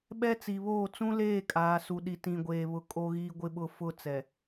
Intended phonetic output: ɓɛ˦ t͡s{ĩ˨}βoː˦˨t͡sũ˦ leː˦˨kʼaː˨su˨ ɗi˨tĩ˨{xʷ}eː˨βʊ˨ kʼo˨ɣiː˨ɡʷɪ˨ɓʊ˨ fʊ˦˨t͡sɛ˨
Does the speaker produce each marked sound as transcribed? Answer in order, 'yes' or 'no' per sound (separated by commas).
no, no